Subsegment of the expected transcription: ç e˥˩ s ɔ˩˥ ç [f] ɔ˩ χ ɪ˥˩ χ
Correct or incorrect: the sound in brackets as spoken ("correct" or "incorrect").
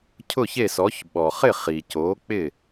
incorrect